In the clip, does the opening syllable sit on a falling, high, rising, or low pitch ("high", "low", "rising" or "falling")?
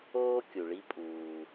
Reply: high